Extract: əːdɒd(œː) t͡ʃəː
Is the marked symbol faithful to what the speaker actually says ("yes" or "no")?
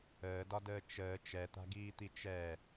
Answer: no